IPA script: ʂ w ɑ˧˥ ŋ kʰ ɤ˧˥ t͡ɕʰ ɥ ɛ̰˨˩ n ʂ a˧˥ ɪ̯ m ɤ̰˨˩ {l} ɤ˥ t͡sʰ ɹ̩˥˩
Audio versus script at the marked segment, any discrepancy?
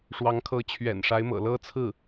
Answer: no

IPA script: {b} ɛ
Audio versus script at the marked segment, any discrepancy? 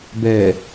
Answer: no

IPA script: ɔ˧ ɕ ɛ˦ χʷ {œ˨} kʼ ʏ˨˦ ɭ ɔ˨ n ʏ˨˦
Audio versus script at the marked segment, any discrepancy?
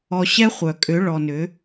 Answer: no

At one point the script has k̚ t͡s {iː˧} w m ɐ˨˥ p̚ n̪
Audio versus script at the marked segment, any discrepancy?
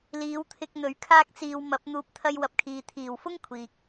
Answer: no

